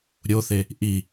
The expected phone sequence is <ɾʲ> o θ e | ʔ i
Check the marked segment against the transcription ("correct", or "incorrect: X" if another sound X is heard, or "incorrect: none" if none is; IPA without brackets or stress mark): correct